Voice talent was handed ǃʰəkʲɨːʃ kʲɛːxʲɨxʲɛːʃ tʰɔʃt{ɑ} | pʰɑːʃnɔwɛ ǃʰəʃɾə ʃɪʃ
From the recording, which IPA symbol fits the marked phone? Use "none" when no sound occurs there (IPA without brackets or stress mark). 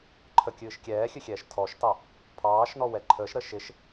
ɑ